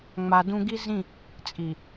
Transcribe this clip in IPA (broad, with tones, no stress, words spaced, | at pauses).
ŋ͡ma˨ dũ˦ ɡi˦zĩ˦˨ | t͡sʼi˨